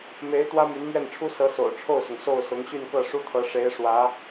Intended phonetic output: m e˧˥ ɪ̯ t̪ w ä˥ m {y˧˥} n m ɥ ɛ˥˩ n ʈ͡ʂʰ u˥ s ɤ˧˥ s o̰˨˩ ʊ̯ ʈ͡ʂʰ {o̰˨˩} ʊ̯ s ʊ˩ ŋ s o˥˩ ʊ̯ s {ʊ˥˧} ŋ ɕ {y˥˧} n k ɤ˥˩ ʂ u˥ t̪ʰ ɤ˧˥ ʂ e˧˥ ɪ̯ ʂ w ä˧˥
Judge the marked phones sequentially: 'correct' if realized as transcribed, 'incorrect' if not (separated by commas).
correct, incorrect, incorrect, correct